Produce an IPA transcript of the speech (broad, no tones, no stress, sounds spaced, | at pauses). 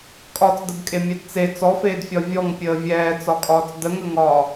kʼ ɒ t͡s d ə b kʼ e mʲ ɛ d t͡s e t͡s ɔ f eː d fʲ ɒ vʲ ɔ ŋ pʲ əː vʲ ɛː t͡s ɒ kʼ ɒː t͡s d ə ŋ ə ŋ ɒː